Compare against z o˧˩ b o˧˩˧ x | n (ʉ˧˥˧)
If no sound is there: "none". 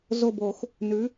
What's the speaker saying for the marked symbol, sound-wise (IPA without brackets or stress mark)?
ʉ˩˥